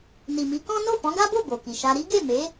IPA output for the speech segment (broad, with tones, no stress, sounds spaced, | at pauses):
n i˨ m i˨˦ k ɔ̃˦ n o˦˨ f ɔ̃˨˦ ɡ a˦ b o˦˨ b o˨ k i˨ ʃ a˧ ɾ i˦ ɡ e˦˨ m e˨˦